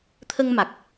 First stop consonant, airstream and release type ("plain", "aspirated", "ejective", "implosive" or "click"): aspirated